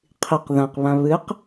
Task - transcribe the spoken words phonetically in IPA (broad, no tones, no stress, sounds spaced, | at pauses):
qʰ i q ð ã q β ã β ɨ q